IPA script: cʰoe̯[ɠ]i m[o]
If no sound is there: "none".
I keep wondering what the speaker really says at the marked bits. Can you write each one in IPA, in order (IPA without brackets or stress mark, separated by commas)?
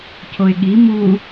ɠ, u